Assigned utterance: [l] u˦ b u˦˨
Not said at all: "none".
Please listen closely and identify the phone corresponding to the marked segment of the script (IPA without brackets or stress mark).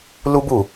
l